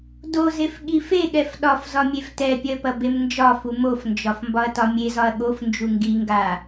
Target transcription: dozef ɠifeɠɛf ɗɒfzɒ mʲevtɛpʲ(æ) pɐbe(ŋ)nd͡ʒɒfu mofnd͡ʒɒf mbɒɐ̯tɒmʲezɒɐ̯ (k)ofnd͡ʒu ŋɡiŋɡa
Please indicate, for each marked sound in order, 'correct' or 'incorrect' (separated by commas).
incorrect, incorrect, incorrect